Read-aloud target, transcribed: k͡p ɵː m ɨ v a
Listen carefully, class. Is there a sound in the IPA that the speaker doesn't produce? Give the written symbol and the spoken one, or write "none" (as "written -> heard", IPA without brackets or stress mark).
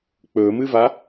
none